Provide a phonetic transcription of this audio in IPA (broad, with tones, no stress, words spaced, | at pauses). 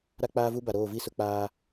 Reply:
ɾa˦k͡paː˦vu˦ ba˨ɾoː˦˨vi˦ sʊ˦k͡paː˦